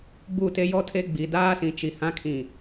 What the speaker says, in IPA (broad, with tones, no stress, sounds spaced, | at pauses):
ɡ͡b u˦˨ t e˦ j ɔ˦ tʰ e˦ ɡ͡b i˨ d aː˦ s ĩ˨ t͡ʃ i˨ h ã˦ kʰ ĩ˨